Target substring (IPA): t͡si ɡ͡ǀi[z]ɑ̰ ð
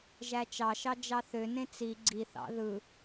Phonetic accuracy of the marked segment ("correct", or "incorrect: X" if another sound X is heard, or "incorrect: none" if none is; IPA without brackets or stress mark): incorrect: θ